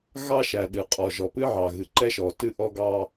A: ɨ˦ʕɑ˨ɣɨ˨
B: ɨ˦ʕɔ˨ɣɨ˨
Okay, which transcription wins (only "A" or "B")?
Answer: A